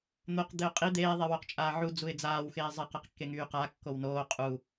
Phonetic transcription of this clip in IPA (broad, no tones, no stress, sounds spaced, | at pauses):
n̪ o q d̪ e ʊ̯ qʼ i d̪ eː ðˤ e w o q t͡ʃʼ aː ʕ u d͡z u ɪ̯ d͡z aː w x eː zˤ ɛ q ɛ q kː e ŋ yː q a kː o w n oː qʼ u